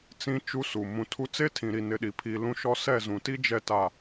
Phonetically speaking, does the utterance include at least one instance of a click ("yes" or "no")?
no